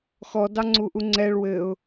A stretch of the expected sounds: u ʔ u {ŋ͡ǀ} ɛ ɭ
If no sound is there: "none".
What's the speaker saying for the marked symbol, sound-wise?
ŋ͡ǀ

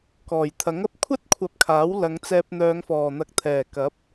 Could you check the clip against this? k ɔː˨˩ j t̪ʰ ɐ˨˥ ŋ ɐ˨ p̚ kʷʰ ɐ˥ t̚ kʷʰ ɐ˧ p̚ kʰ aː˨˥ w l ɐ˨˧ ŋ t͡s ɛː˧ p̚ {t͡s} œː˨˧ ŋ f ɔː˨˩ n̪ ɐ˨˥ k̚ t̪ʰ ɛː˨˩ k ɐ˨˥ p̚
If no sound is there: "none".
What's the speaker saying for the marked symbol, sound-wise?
n̪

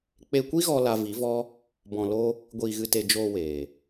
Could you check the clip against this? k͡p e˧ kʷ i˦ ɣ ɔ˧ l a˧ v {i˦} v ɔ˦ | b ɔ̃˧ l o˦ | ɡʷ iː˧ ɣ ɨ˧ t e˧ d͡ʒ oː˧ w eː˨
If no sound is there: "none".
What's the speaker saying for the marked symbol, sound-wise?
i˨˦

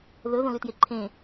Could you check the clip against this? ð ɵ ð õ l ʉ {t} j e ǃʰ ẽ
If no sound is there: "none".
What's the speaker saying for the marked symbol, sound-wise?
t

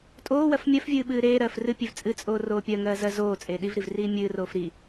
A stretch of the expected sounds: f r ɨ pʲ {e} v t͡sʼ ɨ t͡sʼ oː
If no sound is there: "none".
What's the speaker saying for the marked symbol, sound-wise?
e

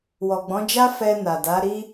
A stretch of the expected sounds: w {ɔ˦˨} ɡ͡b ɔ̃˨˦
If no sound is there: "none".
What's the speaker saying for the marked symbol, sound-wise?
ɔ˨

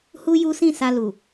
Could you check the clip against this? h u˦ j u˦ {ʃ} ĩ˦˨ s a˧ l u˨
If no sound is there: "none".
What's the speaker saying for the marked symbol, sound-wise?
s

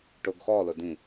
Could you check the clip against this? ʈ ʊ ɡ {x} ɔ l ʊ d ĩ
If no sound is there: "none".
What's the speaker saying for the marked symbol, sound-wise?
x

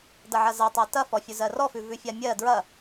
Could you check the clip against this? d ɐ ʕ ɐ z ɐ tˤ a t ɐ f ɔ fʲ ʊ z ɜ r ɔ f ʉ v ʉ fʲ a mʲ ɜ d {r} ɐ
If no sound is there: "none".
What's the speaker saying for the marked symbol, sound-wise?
ɹ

